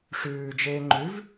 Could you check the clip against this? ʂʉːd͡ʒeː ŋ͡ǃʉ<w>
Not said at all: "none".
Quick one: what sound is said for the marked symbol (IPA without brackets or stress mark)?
v